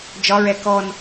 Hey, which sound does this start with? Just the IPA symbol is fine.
d͡ʒ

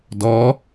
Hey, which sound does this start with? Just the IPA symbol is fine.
d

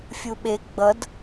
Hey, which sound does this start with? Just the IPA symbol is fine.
fʲ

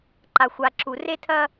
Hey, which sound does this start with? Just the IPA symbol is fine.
ǃ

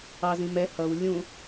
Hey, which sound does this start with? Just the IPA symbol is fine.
ɑ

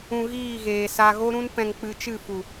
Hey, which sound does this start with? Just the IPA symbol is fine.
ũ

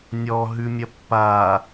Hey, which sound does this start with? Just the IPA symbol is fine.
nʲ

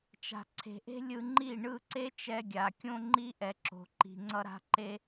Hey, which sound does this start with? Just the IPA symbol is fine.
t͡ʃ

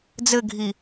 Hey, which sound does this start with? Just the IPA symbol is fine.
d͡z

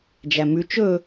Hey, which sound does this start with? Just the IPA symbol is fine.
d͡ʒ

